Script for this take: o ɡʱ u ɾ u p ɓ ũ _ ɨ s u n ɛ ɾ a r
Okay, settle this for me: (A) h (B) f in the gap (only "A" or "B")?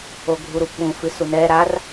B